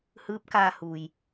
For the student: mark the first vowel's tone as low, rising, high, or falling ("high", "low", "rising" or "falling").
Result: rising